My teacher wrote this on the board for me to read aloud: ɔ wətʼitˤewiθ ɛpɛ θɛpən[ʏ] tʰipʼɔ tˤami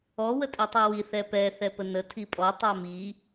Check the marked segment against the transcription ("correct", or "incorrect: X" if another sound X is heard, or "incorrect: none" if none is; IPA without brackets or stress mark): incorrect: ə